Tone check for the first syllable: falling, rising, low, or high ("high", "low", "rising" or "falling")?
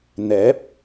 rising